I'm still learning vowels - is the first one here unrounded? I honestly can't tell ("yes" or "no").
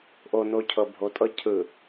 no